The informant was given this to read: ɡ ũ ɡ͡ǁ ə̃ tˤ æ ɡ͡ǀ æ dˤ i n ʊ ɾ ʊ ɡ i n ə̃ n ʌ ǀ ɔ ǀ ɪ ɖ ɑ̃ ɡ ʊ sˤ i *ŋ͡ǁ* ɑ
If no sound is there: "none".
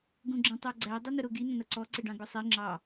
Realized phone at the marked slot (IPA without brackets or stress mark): ŋ͡ǁ